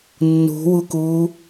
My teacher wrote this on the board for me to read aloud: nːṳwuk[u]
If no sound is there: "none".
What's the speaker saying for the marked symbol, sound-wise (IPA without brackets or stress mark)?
uː